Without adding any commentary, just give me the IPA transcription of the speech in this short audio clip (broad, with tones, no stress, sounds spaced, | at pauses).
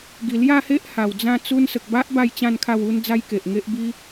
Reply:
ɡ i˨˩ l j a˥˧ h e˦ ʔ h a˨˩ w d͡z ã˥˧ t͡s u˧ n s ə˨ k̚ b a˦ ʔ b a˥˧ j t͡ɕ ã˥˧ n kʰ a˥˧ w u˦ n d͡z a˦ j k e˨ ʔ ŋ e˦ ʔ b i˦